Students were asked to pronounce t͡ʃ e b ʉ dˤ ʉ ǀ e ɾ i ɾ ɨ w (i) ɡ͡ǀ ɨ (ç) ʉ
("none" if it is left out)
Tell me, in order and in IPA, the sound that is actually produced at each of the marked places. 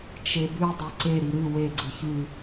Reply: e, ç

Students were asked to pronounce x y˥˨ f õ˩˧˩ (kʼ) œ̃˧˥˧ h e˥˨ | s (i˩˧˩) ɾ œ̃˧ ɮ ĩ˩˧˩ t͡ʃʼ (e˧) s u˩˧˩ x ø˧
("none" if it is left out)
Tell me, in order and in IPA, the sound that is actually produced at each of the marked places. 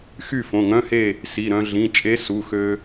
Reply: ŋ, i˩˧˩, e˧˥

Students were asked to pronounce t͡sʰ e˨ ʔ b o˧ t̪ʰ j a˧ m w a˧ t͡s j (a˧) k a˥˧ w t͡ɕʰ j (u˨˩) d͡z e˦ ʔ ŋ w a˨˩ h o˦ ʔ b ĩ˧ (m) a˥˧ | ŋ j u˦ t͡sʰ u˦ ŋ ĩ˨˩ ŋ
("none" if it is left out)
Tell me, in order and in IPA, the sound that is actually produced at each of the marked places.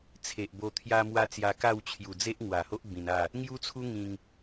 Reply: a˧, u˨˩, n

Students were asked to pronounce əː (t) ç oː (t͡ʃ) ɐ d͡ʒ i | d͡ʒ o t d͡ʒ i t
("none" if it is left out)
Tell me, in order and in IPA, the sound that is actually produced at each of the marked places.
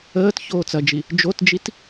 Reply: t, t͡s

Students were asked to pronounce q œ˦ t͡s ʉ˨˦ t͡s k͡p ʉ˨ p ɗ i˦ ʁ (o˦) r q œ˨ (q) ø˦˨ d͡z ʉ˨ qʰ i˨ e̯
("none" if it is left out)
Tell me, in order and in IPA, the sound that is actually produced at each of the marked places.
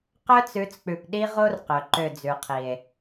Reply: o˦, ǃ

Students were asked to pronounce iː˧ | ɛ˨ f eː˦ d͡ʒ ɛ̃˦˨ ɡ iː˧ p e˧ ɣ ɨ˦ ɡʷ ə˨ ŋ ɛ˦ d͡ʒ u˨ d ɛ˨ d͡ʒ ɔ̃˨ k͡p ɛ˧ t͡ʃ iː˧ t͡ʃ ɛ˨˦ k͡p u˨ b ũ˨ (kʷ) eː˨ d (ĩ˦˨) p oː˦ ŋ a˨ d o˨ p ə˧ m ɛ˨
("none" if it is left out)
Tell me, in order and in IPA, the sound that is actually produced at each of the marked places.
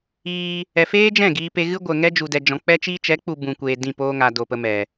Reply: kʷ, ĩ˦˨

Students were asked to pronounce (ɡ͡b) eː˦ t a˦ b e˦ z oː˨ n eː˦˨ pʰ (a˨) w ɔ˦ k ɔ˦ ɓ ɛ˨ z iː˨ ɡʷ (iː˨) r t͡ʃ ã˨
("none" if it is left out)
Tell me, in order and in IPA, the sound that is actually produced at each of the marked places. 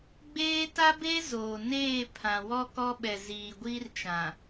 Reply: ɡ͡b, ã˨, iː˦

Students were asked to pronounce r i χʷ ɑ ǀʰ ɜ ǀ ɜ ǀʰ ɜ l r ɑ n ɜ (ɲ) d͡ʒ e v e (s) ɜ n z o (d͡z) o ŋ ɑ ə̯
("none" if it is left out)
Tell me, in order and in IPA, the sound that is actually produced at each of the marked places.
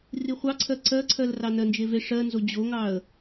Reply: n, ʂ, d͡ʑ

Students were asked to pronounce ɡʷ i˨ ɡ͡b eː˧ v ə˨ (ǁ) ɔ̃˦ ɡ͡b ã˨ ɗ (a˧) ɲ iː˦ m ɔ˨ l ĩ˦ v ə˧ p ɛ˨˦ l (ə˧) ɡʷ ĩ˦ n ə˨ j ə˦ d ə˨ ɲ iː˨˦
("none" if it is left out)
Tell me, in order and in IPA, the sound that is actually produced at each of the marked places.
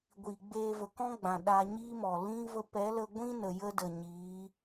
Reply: k, a˧, ə˧

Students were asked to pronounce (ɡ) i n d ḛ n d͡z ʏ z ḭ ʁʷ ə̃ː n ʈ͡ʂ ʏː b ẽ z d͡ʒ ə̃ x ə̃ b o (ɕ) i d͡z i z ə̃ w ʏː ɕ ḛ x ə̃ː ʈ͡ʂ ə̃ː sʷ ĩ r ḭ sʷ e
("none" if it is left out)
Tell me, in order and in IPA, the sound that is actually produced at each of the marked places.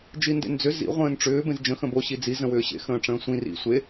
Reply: d͡ʒ, ɕ

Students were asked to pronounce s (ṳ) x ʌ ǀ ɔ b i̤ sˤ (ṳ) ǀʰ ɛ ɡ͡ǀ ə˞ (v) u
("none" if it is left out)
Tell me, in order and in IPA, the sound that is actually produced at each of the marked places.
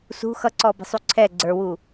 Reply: ṳ, u, w

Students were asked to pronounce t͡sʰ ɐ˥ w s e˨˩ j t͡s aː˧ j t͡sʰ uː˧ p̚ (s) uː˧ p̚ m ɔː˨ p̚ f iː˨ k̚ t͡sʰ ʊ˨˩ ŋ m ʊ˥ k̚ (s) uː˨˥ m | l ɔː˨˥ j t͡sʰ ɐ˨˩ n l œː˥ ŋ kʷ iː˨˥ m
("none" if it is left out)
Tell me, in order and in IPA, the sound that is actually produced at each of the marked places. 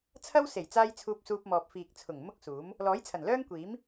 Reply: s, s

